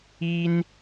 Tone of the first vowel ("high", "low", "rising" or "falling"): high